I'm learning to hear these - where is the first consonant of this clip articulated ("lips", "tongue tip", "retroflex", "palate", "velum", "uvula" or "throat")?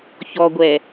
palate